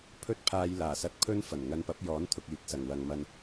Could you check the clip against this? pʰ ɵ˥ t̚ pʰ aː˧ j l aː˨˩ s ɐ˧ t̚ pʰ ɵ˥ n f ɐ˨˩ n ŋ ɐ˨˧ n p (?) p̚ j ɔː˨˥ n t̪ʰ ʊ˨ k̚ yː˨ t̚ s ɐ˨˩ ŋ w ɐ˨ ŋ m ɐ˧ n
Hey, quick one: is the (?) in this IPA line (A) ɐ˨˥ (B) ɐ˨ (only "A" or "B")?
A